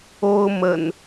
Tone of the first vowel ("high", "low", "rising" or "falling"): high